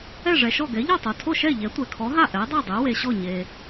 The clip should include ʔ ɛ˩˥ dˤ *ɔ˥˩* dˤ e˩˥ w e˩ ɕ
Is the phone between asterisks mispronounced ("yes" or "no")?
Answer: yes